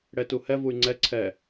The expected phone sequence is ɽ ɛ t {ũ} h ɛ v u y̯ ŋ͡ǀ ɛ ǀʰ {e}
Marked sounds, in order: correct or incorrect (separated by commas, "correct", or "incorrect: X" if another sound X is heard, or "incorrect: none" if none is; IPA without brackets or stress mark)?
incorrect: u, incorrect: ɛ